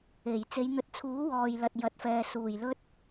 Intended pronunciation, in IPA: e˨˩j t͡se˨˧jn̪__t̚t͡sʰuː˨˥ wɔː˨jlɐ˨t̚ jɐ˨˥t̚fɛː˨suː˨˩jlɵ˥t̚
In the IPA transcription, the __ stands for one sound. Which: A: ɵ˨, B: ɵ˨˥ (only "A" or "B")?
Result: A